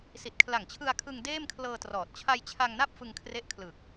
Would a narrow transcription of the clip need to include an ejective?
no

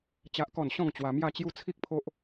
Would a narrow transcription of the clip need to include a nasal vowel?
yes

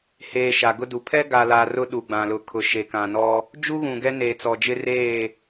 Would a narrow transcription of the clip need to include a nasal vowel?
yes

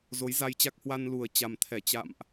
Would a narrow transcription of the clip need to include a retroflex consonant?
no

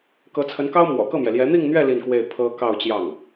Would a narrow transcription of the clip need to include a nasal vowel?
no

